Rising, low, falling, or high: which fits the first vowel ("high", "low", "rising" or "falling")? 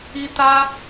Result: high